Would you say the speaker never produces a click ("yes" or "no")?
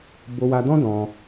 yes